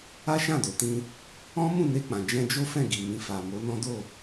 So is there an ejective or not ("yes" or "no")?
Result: no